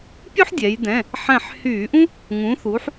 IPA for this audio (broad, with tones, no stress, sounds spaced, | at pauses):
pʲ u˥ ħ dʲ ɛ˩˧ j d ɛ̃˩˧˩ | ħ ɛ̃˧˩ ħ h yː˧˩˧ ʔ ũ˥ | ŋ ũ˩˧ θ uː˩˧ ħ